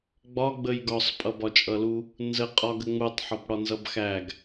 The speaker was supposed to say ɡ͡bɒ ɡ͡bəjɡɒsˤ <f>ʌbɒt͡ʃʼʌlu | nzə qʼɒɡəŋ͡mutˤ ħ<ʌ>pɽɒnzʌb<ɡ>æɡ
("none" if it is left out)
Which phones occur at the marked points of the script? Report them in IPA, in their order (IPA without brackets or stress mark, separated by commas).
pʼ, ɒ, x